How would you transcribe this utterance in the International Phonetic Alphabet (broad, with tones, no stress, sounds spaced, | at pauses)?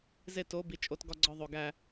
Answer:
z e˦˨ t o˨˦ b i˨˦ t͡ʃʼ o˨˦ t ɡ ɒ˦˨ ɡ͡ǀ ɒ˦˨ ðˤ o˨ ɡ æ˦˨